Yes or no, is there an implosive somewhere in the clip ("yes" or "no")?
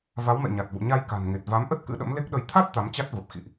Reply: yes